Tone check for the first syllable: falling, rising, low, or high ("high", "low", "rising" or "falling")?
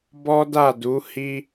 high